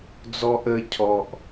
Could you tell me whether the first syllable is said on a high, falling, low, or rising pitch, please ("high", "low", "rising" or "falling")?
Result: high